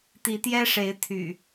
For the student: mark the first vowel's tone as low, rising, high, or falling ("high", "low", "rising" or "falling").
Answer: rising